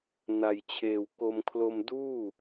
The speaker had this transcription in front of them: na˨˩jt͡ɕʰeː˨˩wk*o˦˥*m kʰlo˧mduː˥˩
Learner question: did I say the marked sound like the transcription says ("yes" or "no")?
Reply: no